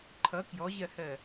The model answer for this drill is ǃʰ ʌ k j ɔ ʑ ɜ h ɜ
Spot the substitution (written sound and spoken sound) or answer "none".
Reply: none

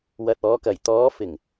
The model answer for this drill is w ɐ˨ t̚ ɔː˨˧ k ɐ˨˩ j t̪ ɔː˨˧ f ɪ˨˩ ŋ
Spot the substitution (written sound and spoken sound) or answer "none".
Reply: none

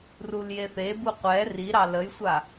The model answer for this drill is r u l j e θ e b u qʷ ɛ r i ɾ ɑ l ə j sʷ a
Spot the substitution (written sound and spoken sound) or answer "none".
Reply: none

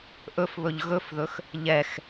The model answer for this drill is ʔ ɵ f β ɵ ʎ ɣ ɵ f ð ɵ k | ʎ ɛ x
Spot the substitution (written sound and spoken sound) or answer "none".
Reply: k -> x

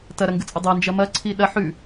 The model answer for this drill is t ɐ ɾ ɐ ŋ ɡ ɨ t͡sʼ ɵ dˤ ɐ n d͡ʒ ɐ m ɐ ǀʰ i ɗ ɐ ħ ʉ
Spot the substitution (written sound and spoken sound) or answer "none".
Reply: none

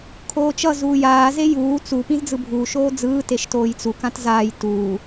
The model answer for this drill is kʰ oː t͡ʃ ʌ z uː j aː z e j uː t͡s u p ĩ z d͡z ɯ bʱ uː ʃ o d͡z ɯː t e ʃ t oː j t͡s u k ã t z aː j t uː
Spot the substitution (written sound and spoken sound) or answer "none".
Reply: o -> oː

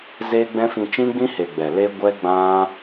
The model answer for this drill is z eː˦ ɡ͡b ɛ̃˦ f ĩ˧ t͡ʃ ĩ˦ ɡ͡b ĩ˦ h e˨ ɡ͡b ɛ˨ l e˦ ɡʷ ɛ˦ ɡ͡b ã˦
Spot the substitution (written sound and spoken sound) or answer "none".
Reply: none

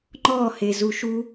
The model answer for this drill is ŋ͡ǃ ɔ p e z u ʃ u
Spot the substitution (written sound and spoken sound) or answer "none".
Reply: p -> h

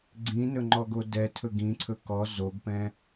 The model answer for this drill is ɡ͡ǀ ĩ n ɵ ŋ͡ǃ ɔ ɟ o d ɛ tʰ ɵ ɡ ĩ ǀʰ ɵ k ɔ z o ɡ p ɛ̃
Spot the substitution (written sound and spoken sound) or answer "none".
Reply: ɟ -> ɡ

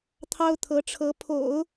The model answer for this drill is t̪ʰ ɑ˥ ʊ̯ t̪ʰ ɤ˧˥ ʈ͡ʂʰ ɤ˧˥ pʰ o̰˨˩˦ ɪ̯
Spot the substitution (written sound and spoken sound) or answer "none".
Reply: ɪ̯ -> ʊ̯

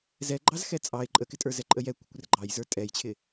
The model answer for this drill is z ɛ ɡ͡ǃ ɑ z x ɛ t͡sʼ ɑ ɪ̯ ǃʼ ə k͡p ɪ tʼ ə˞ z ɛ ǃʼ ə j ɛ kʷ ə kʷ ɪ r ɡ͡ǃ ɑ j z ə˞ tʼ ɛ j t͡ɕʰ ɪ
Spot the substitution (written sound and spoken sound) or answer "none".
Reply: k͡p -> k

